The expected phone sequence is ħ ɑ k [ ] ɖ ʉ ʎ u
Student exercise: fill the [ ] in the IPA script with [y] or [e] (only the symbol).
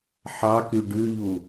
y